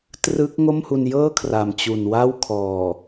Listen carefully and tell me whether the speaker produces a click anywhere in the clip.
no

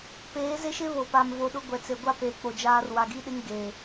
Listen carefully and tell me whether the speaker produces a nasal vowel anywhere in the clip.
no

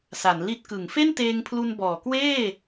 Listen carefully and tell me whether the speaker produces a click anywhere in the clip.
no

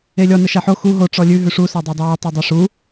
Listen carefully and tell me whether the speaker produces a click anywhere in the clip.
no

